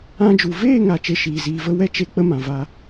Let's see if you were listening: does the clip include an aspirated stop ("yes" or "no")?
no